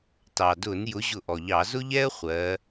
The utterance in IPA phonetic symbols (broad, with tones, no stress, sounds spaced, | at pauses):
t ɑ˩ d ʊ˧˩˧ n j ʊ˨˦ ʑ ʊ˧˩ ʔ ɔ˩ ʎ ɑ˧˩˧ z ʊ˥ ʎ ɛ˥ ə̯ χʷ ɜ˨˦